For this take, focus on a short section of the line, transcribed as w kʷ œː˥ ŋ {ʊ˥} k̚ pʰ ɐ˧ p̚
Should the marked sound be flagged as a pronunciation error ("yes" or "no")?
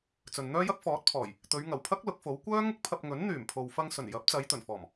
no